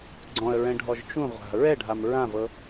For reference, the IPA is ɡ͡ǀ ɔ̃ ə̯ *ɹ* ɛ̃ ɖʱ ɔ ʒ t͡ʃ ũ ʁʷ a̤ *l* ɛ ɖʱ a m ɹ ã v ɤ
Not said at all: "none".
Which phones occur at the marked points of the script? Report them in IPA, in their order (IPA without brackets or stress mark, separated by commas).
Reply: ɹ, ɹ